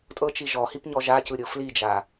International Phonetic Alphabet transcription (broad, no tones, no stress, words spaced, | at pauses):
tʼɤt͡ʃi ʒɔhipɲɔ ʒacɯɾʲɤ flid͡ʒa